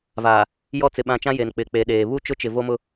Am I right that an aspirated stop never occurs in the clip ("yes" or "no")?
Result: yes